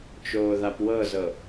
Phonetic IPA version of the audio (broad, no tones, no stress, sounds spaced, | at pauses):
t͡ʃ oː ð a p w ɤ z ɤ